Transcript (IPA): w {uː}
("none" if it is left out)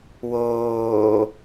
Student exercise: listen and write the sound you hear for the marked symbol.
oː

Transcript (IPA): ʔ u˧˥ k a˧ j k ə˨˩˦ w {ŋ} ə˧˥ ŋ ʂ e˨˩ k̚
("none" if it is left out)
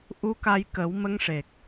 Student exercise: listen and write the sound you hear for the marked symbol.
m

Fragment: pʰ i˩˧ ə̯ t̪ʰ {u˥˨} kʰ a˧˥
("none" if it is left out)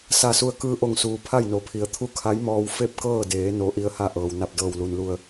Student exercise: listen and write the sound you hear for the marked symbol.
u˥˨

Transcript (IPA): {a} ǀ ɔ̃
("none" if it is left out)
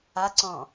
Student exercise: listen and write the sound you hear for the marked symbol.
a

